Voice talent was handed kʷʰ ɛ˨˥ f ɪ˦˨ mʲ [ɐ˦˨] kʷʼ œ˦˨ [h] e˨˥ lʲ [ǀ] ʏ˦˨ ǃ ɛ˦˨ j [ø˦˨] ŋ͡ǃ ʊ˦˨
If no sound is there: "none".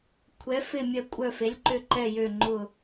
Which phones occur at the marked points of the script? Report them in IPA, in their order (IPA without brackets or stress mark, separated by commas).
ɐ˦˨, f, ǃ, ø˦˨